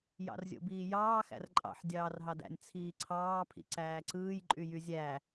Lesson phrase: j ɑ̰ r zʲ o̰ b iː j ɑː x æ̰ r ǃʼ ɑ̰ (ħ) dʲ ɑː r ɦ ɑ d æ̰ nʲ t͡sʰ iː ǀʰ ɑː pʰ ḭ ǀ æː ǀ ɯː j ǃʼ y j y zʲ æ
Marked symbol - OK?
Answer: yes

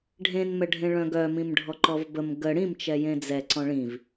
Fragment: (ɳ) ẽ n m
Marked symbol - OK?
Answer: no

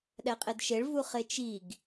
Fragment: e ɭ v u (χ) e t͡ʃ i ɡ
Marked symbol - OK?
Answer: yes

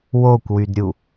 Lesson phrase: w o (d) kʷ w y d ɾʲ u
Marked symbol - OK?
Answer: no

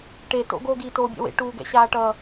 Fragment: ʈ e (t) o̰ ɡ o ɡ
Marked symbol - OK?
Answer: yes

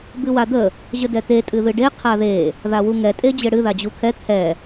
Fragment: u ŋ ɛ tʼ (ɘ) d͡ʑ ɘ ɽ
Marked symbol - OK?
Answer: no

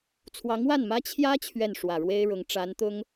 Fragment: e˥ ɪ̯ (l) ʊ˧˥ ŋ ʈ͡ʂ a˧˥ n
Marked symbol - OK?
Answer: no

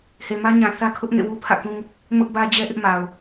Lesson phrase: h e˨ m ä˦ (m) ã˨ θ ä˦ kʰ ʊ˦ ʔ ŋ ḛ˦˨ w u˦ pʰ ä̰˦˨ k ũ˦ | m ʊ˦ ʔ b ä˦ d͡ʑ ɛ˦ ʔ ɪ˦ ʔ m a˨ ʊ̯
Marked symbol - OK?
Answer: no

